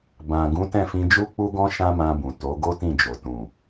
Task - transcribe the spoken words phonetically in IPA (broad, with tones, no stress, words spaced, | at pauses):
bã˨ ɡũ˨˦tɛ̃˦˨fĩ˧ d͡ʒu˦k͡pu˦ɡɔ̃˦ ʃã˦mã˧bũ˨ to˨˦ɡo˦tĩ˦˨d͡ʒo˨ tũ˨